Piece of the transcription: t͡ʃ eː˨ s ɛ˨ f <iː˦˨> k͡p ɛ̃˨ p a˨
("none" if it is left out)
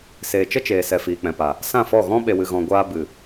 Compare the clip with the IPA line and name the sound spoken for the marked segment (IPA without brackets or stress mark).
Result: iː˨